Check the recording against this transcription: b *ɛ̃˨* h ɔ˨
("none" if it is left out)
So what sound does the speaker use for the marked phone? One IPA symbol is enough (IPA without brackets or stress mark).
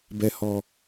ɛ˨